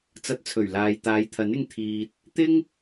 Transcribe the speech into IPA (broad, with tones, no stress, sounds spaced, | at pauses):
t͡s ɐ˨˥ t̚ t͡sʰ ɵ˨˩ ɥ l aː˨ j t̪ aː˨˧ j t̪ʰ ɐ˨˥ n ɪ˧ ŋ t̪ʰ iː˨ t̚ | t̪ ɪ˥ ŋ